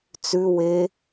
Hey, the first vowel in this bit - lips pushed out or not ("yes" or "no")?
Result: yes